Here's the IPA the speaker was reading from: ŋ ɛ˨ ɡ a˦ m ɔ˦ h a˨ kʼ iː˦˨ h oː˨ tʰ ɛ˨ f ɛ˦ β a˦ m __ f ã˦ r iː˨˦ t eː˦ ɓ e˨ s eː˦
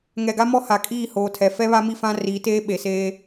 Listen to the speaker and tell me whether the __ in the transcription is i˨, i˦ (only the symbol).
i˦